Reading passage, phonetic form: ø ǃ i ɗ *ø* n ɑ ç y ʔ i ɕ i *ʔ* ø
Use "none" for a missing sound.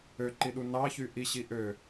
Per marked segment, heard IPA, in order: u, ʔ

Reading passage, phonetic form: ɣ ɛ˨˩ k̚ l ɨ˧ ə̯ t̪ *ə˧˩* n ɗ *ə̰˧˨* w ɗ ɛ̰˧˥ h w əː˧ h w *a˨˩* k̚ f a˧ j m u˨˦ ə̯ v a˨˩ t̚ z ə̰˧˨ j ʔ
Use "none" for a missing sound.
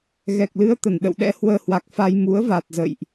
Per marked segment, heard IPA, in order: ə˧˩, ə̰˧˨, a˨˩

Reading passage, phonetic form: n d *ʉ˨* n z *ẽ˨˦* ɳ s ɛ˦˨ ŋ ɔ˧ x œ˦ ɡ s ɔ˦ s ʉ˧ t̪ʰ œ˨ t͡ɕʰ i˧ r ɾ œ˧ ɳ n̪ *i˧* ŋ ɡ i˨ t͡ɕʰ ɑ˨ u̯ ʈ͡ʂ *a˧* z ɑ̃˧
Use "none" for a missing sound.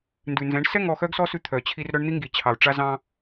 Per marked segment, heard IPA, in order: ʉ˨, ɛ̃˨˦, i˧, a˧

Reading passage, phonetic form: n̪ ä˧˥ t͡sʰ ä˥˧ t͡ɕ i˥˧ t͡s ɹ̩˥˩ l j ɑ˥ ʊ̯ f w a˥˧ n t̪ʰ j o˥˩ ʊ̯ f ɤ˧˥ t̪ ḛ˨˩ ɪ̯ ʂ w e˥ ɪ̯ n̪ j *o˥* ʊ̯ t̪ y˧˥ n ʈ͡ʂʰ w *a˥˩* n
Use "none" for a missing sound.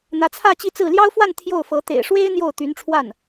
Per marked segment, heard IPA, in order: o˥˩, a˥˩

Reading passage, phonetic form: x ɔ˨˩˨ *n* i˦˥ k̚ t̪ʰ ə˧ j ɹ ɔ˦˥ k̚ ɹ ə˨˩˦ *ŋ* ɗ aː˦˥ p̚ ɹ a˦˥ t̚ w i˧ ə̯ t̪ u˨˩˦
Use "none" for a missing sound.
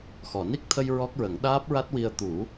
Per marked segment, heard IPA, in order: n, ŋ

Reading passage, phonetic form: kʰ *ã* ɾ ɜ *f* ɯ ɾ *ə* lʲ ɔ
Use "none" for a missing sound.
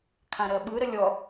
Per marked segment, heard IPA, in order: ã, ɓ, ə

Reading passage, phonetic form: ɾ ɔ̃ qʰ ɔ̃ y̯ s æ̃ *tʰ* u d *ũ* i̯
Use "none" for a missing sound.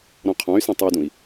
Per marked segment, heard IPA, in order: tˤ, ũ

